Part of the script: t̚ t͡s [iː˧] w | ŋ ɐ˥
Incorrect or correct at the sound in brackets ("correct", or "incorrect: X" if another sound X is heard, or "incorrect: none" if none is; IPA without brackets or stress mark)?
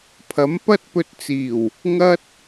incorrect: iː˨˩